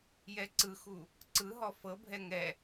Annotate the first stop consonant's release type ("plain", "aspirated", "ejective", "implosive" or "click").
click